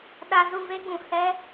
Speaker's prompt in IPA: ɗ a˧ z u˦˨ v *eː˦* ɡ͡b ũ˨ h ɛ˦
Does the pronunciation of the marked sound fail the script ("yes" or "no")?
no